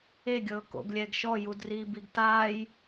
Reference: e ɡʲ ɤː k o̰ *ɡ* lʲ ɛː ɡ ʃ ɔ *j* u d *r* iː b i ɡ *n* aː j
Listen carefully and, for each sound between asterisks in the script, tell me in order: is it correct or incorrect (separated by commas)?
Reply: correct, correct, correct, incorrect